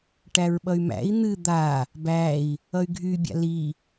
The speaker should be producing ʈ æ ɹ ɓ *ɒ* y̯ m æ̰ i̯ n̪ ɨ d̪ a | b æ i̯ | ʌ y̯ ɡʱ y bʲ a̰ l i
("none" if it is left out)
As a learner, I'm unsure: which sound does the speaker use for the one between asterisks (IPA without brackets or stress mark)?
ʌ